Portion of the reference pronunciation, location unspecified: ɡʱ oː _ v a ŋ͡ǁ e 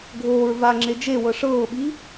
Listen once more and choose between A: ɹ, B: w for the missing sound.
A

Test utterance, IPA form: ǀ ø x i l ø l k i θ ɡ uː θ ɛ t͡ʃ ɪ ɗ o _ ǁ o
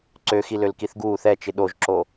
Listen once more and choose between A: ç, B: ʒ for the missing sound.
B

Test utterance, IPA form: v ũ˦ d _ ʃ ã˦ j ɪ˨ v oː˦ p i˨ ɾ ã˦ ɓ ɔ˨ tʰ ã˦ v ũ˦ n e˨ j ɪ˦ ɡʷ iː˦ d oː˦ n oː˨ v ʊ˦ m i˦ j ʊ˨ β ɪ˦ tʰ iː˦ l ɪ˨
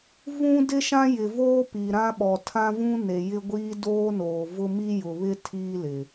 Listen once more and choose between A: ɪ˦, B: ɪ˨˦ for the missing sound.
A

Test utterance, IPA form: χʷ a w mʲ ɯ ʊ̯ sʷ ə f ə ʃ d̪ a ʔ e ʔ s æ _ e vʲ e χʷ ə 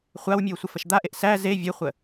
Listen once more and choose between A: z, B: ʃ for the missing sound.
A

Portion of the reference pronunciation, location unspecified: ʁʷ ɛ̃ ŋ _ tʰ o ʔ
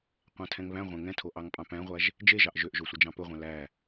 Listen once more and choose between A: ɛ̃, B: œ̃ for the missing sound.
A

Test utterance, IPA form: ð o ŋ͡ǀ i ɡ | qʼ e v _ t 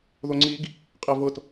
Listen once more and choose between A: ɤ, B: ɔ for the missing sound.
A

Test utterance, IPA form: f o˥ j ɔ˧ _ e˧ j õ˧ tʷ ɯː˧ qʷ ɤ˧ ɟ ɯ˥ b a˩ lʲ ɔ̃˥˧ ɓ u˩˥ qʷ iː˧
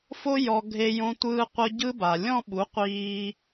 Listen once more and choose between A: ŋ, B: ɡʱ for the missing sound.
B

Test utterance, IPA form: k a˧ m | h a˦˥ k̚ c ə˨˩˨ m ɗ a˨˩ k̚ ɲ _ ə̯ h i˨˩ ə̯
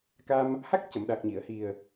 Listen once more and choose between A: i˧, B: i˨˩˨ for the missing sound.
B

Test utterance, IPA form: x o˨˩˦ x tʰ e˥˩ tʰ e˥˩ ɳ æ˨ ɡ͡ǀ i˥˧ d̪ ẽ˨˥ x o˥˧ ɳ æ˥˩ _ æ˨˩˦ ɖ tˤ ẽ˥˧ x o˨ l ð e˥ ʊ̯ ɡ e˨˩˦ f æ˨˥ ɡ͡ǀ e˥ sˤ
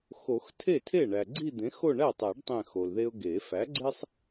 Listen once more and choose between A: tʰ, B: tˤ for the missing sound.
B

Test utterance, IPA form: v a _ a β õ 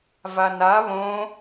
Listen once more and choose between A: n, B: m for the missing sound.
A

